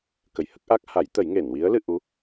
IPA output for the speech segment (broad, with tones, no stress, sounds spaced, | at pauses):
k ə˨˩ j h ə˦˥ k̚ ʔ a˦˥ k̚ h a˨˩˦ j t̪ ə˨˩˦ j ŋ e˨˩˨ n w i˧˥ ə̯ l ɨ˧ ʔ u˧˥